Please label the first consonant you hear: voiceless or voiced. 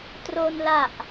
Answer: voiceless